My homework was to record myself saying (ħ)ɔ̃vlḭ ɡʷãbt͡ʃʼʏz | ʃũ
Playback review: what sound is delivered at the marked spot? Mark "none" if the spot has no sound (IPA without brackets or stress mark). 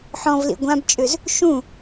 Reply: ħ